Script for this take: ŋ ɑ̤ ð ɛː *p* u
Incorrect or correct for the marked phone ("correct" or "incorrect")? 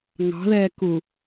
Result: incorrect